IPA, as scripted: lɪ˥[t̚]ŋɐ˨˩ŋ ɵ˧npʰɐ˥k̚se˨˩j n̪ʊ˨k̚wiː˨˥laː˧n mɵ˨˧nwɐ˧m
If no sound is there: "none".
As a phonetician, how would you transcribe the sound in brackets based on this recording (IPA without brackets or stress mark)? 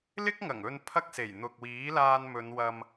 k̚